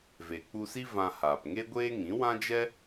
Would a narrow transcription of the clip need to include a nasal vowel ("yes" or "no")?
yes